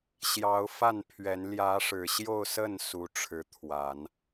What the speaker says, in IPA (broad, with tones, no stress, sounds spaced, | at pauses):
ɕ j ɑ˧˥ ʊ̯ f a˥˩ n pʰ ɥ ɛ˧˥ n l j ä˧˥ ʂ ɻ̩˨˩ ɕ j o˥˧ ʊ̯ s ə˥˩ n s u˥ ʈ͡ʂʰ ɻ̩˧˥ t̪ʰ w a˨˩˦ n